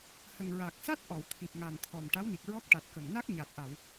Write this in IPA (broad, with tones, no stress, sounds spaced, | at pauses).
h ə˨˩ ŋ ɹ a˨˩ k̚ s a˦˥ t̚ ʔ ɔ˨˩˨ w t̪ʰ i˨˩ p̚ ŋ a˨˩ n t̪ʰ ɔ˨˩ m ʈ a˧˥ w n i˨˩ k̚ ɹ ɔ˦˥ k̚ ʈ a˨˩ t̚ k ə˨˩ ŋ n a˦˥ k̚ ɲ a˨˩ t̚ ʔ a˨˩˨ w